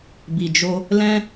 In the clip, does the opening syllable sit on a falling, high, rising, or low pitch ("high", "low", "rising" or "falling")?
low